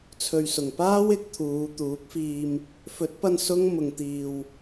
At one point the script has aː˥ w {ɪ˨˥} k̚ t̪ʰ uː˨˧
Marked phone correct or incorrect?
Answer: correct